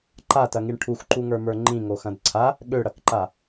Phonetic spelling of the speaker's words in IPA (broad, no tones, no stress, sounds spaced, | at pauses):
ǃ a t ɐ ŋ i ɳ ʈʰ u x ǃ u ŋ ə˞ m ə˞ ŋ͡ǃ ĩ ŋ o x ɐ̃ d ǀʰ a | ɠ ø ɽ ɐ k ǃ a